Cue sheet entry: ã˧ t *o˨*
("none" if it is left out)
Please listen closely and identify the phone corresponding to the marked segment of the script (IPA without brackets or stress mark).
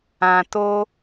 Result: o˦